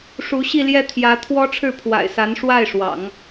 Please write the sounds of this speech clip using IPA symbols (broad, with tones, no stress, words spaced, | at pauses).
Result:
ʂu˧˥ɕi˥˧ ljɛ˥˩t̪ʰjä˧˥t̪ʰwɔ˥ ʈ͡ʂʰɻ̩˥˩pʰwa̰˨˩ɪ̯sa˧˥n ʂwa˥˩ɪ̯ʂwɑ̰˨˩˦ŋ